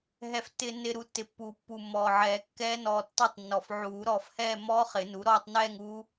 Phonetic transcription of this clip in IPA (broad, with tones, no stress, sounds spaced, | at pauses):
ɦ ɛ˧ f tː ɪː˧ nː ɪ˧ ɾ u˧ tː ɪ˨˩ pː uː˨˩˦ pː u˨˩ mː ɔː˨˩ ʕ ɛː˨˩˦ kː ɛː˦˥ n ɔː˧ tː ɔ˥˧ tˤ nː ɔ˨˩ f ʕ uː˨˩˦ ɾ ɔː˧ f h ɛː˥˧ mː ɔː˦˥ χ ɪ˨˩˦ n u˩˥ ɾ ɔː˥˧ tˤ n ɛː˥˧ ŋ u˦˥